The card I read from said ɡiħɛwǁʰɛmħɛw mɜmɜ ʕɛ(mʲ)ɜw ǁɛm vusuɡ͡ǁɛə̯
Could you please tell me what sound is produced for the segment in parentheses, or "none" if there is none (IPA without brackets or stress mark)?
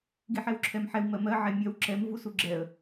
mʲ